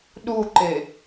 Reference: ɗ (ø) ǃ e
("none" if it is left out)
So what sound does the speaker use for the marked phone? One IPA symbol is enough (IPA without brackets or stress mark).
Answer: u